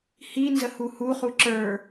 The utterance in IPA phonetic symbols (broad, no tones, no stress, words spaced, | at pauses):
hinzəhu hu χuǁə˞